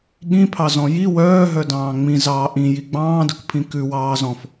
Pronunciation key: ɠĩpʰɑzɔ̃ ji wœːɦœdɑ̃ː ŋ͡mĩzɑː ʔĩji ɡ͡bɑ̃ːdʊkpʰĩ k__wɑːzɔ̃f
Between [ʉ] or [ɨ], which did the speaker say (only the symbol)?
ʉ